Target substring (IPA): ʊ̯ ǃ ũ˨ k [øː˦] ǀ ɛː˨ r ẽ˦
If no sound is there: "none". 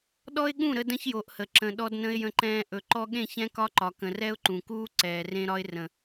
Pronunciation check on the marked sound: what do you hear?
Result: uː˦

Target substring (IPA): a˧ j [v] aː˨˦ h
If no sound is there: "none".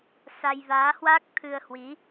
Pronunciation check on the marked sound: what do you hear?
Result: v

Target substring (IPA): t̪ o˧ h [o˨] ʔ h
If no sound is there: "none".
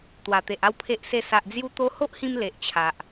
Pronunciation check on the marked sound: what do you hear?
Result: o˦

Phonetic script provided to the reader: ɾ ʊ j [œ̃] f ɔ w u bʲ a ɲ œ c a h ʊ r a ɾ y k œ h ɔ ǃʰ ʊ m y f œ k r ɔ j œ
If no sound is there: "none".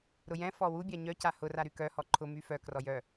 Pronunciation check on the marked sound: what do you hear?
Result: ɛ̃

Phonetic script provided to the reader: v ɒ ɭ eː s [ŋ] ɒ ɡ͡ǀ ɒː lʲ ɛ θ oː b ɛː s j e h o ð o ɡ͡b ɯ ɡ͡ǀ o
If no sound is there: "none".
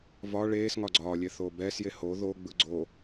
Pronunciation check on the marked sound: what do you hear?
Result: ŋ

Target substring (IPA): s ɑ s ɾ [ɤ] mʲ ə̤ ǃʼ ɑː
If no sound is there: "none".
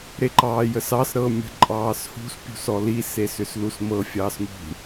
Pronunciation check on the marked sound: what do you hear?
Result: ɤ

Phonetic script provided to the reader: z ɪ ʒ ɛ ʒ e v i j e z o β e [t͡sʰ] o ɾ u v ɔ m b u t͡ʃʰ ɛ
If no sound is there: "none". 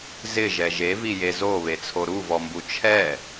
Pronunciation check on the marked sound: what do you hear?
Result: t͡sʰ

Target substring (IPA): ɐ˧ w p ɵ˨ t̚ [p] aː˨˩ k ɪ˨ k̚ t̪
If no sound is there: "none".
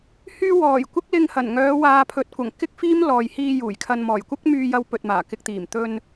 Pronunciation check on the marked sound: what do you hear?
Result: m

